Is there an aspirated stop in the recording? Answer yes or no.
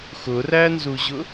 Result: no